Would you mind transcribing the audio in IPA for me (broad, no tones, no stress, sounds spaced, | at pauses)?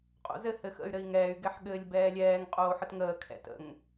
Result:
qʼ o̰ z ɘ h ɘ x ə̰ y̯ ɾ ɘ i̯ ŋ ɛː y̯ ɡ ɛ ħ ɠ ɘː lʲ b ɛː lʲ ɛː ŋ qʼ oː ħ ə t ŋ əː kʰ ɛ̰ t ə̰ ŋ